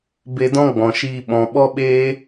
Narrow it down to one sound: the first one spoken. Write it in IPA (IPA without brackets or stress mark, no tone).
b